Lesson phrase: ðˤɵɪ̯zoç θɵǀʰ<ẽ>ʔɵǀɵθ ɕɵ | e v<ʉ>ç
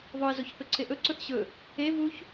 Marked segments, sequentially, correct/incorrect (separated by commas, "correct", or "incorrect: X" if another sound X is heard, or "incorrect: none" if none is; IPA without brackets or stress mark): incorrect: e, incorrect: u